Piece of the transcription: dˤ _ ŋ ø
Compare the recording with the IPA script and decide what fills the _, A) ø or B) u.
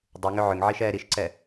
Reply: B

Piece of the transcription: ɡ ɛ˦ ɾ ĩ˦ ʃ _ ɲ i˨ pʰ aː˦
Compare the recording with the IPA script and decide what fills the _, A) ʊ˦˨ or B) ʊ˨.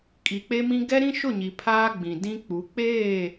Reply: A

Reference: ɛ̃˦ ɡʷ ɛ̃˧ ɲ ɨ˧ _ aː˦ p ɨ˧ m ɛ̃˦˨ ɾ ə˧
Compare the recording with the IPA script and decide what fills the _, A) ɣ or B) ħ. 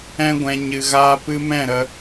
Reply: A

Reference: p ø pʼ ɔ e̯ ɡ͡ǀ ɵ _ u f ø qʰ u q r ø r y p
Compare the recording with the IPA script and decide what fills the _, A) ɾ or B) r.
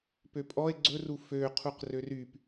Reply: B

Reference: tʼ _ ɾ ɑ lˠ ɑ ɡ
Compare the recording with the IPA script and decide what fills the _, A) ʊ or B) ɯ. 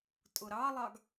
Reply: A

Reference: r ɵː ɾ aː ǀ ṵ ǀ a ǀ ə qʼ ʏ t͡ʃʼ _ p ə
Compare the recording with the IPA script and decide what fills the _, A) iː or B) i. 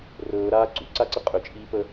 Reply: A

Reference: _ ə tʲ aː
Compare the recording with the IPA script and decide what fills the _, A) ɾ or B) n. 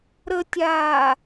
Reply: A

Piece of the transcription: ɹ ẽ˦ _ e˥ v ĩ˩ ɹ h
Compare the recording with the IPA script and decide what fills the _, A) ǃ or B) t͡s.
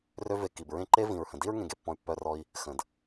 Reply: A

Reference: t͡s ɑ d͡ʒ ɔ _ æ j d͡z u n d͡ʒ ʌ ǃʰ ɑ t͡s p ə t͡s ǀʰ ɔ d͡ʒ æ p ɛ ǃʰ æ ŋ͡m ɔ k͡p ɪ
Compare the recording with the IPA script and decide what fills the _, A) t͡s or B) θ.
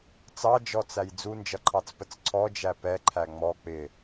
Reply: A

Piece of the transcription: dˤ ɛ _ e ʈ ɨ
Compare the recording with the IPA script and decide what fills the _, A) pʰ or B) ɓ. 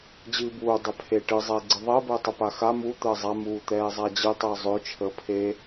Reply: A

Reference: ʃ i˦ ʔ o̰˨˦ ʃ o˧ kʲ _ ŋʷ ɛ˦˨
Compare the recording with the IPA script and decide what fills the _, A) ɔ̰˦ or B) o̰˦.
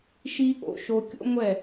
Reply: B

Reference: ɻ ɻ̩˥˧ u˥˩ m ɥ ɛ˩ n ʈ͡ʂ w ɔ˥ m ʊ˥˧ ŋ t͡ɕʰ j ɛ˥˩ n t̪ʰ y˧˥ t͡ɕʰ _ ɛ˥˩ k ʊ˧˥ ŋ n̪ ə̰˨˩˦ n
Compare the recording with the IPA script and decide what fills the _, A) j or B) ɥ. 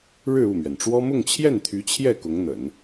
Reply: A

